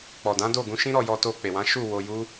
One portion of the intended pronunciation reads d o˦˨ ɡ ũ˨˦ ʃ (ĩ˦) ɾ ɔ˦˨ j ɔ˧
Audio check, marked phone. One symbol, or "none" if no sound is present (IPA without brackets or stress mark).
ĩ˦